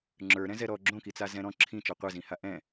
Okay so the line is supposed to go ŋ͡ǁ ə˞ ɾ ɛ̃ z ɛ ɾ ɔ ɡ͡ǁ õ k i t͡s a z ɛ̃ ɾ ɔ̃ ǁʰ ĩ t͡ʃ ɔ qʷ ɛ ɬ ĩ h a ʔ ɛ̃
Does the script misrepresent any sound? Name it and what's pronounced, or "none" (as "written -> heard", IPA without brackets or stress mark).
ɬ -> z